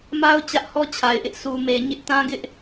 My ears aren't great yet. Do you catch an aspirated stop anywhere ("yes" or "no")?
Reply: yes